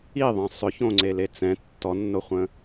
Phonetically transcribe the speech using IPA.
i ðˤ ɛ̃ sˤ ʏ ç õ ŋ͡ǀ e l e t͡s ɛ̃ tː ɔ nː o χʷ ə̃

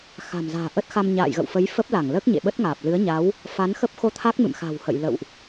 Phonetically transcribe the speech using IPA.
x a̤˨˩ m z a̤ː˨˩ ʔ ə˦˥ t̚ x a˧ m ɲ a̰ː˧˨ j ɣ ə̰˧˨ w f ə˨˦ j f ə˦˥ p̚ l a˧˩ ŋ l əː˦˥ k̚ ɲ ḛ˧˨ ɓ ə˦˥ t̚ ŋ aː˨˩ p̚ l ɨ˨˦ ə̯ ɲ a˨˦ w | f a˨˦ n x ə˦˥ p̚ x o˧ t̪ʰ a˦˥ k̚ m ɨ̰˧˨ m x a̤˨˩ w h ə̰˧˨ j l ə̰˧˨ w ʔ

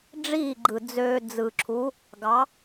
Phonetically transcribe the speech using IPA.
ɖ͡ʐ iː˥˩ ɡ͡ǃ ɯ˨˩ d͡z øː˧ d͡z ɯ˨˩ ǁʰ u˨˥ | ɡ ɑ˨˥

